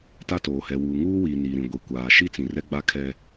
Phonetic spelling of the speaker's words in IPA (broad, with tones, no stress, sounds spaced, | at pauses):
t a˦ t oː˨ h ɛ˨ w uː˨ ŋ uː˦ w iː˨ n iː˨ ɾ ĩ˨ ɡʷ i˨ kʷ aː˨ ʃ i˦ t͡s ĩ˨ r ɛ˦ ɡ͡b a˦ kʰ ɛ˦